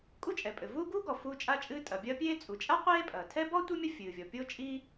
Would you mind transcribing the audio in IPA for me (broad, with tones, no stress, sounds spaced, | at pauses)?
kʼ u˥ t͡ʃʼ ɛ˩ pʼ ɘ˩ v uː˥ ɡ uː˥ ɡ ɔ˩ f uː˥ t͡ʃʼ a˥ t͡ʃʼ ɨː˥ tʼ ɐ˩ bʲ ɐː˥ pʲ eː˥ t͡sʼ u˩ t͡ʃʼ a˥ qʷ eː˥ pʼ ɐː˩ tʰ ɛ˥ b ɔ˥ tʷ i˥ mʲ ɐ˥ fʲ ɨː˩ vʲ ɔ˩ pʲ o˥ t͡ʃʼ i˥